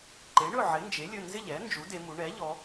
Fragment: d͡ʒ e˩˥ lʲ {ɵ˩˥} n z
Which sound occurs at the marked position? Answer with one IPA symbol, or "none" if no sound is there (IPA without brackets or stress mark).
ɵ˩˧˩